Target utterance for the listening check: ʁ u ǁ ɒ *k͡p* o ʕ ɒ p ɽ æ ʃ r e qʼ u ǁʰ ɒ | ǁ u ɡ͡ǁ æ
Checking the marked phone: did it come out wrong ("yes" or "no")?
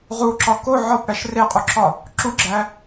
yes